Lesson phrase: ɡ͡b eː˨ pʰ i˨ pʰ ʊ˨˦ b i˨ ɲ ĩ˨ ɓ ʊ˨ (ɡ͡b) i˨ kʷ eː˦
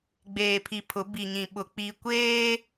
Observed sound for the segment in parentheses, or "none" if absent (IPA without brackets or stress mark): k͡p